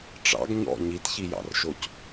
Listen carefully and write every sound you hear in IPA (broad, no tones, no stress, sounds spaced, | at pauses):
ʈ͡ʂ ɑ̰ ɡ ɲ ɔ̰ ɲ i t ç i j ɑ̰ r ʃ o c